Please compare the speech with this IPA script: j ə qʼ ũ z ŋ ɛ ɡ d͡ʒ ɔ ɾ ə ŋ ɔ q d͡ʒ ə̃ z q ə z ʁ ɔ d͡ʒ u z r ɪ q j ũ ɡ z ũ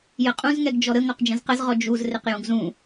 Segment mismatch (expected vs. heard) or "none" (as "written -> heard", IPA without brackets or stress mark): none